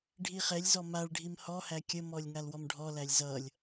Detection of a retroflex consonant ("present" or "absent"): present